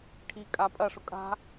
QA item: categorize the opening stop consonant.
aspirated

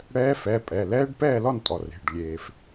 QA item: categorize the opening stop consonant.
ejective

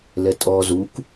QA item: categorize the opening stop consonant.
ejective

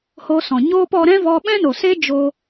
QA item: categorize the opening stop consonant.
plain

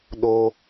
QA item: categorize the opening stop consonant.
implosive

